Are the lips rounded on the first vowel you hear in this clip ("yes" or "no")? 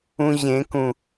yes